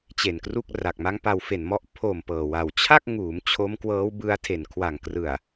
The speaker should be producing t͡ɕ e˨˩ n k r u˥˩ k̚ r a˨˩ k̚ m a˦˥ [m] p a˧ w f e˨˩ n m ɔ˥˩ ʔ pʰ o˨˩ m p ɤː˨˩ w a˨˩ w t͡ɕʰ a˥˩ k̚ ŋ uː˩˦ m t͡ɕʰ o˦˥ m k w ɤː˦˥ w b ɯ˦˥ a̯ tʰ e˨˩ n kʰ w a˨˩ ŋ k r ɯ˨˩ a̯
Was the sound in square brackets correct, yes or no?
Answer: no